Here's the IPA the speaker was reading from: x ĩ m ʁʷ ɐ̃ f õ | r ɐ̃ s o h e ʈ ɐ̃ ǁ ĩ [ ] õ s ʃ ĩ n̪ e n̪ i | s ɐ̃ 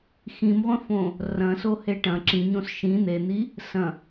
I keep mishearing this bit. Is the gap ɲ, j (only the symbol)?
ɲ